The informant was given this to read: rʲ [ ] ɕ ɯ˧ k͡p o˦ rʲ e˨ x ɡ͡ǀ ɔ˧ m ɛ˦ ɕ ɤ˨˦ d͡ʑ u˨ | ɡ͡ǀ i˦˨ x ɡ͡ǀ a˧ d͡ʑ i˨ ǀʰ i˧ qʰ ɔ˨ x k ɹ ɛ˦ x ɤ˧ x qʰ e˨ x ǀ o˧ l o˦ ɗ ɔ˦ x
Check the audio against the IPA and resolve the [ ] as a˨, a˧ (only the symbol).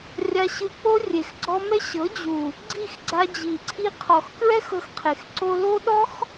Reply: a˧